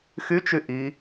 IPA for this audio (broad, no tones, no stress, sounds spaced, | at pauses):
x y t͡ʃ y ʔ i